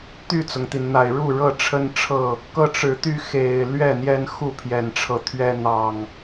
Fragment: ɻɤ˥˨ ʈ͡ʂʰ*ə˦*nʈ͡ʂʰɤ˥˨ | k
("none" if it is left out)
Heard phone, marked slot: ə˦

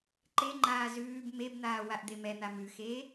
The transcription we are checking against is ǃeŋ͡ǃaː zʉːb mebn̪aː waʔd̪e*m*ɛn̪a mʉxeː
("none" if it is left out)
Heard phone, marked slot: m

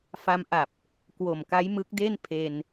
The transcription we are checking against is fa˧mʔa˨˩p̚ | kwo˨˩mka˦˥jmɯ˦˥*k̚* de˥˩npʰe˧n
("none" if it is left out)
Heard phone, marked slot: k̚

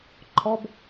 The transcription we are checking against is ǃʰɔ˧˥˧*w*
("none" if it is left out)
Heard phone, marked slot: b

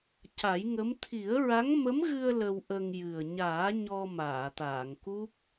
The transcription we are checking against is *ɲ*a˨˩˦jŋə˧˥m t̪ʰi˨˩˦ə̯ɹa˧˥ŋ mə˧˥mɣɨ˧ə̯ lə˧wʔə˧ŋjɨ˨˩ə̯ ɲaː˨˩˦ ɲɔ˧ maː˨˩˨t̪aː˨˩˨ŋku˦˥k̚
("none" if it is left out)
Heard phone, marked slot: c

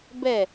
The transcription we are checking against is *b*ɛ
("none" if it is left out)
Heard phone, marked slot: b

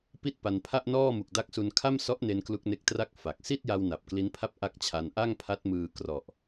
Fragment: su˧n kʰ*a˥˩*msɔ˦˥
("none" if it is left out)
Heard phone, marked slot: a˥˩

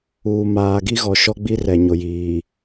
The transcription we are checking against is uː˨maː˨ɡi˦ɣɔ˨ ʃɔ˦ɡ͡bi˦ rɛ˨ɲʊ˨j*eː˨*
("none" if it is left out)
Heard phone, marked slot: iː˨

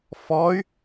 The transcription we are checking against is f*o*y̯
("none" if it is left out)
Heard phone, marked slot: ɔ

